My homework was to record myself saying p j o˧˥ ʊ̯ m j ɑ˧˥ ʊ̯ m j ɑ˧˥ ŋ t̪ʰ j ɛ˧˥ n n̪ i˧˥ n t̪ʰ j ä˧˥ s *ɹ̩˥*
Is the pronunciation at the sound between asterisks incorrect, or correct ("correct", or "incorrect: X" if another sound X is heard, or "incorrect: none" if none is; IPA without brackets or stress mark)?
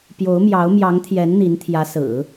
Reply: incorrect: ɹ̩˨˩˦